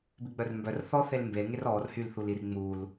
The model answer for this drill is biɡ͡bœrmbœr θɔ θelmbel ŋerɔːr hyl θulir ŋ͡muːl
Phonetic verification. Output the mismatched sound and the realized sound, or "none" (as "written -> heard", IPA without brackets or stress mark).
none